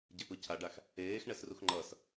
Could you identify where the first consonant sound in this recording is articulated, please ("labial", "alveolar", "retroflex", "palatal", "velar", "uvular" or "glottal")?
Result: palatal